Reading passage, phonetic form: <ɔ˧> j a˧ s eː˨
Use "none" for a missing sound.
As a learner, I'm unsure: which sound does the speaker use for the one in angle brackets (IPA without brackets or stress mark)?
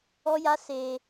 ɔ˧